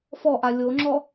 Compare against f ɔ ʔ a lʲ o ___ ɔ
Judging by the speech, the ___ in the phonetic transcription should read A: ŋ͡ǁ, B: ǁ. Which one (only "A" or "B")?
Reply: A